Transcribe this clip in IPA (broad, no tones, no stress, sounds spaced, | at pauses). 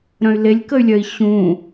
ɾ œ̃ y̯ l e lʲ k ə y̯ lʲ œ i̯ ɕ ũ